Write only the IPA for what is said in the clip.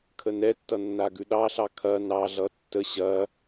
kʰ ə n ɛ tː ʌ nː a ɡ ʉ ɗ ɑ ɬ ɑ kʰ ɐ n ɑ ɮ ʌ tː ə ɕ ɐ

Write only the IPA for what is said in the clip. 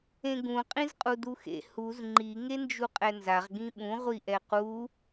ẽ ɡ ũ qʼ ĩ z qʼ u d u x ḛ h u z ŋ͡ǃ i ŋ e n d͡ʒ u qʼ ɛ n z a ʁ ɡ ĩ ɓ ũ ʁʷ i ʔ ɛ q u

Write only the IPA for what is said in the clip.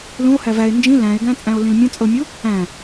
l ũ o̯ h æ v æ e̯ n d͡ʒ ĩ l æ̃ e̯ ɡ æ̃ t͡sʼ æ̃ o̯ l ĩ l mʲ ə̃ t͡sʼ ɤ mʲ u | æ̃

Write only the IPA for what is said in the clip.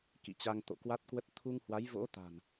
k ḭ˧˨ t͡ɕ a˧ ŋ t̪ o̰˧˨ k w a˦˥ t̚ k w ə˦˥ t̚ t̪ʰ u˧ ŋ h w a˨˦ j v o̰˧˥ t̪ a̤˨˩ n

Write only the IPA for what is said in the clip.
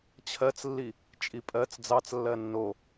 t͡ɕʰ ɜ t͡s lː i | t͡ʃʼ i pʼ ɜ t͡s d͡z ɑ t͡s lː ɜ nː o

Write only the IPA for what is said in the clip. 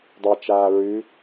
dˤ a t͡ʃ aː ɹ ʉ

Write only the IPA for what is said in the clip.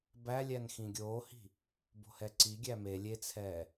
b æ lʲ æ n x ĩ ɡʲ oː h i̤ | b o̤ h ɛ ǀ i ɡʲ æ m e lʲ e t͡sʰ ɛː

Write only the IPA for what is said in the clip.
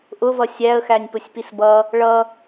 ʔ ʊ v ʌ sʲ æ ə̯ x æ nʲ p ʊ sʲ p i s b ʌ | ɭ ʌ

